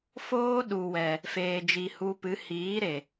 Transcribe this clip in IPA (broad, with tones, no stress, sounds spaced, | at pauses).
f oː˦ ɗ u˨ w ɛ˨ | f eː˨ d͡ʒ i˨ h u˧ p ɨ˨˦ h iː˨˦ ɾ e˨